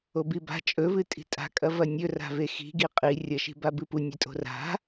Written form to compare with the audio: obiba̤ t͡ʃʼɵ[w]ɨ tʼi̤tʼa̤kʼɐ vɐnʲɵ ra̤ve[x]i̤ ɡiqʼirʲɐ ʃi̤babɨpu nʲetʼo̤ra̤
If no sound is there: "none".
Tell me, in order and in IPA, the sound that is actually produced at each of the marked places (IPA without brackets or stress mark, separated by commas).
v, x